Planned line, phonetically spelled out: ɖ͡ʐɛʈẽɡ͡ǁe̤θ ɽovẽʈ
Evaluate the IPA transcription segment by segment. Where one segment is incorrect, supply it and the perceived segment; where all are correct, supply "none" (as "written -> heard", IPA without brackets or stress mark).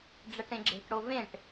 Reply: θ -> ʈ